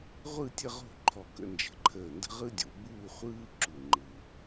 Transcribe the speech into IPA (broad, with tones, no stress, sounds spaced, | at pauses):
ʁʷ ɯ˥˧ tʲ ə˥˧ ʁ o̤˥˧ ǃʰ ɔ˧˩ k ə̰˧ n d͡ʒ ə̤˧˩ ǃʰ əː˧˩ n d ə̤˥ ʁ ɯ˥ dʲ o̰˩˧ b uː˥˧ χʷ ɯː˥ ǁ u˧˩ ŋ͡ǃ ɯ˧